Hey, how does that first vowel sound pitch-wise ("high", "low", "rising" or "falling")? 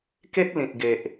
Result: high